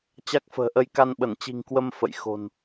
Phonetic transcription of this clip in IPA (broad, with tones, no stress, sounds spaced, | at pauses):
t͡ɕ a˦˥ k̚ f ə̤ː˨˩ ʔ ə˧ j k a˧ n ɓ ə˧˩ n t͡ɕ i̤˨˩ ŋ k w ə˧ m f ə̰˧˨ j x o̤˨˩ n